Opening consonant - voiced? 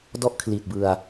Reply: yes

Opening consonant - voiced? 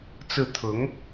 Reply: no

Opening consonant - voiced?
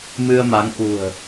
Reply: yes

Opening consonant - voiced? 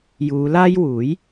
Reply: yes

